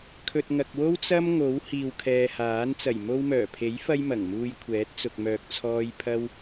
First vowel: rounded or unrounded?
rounded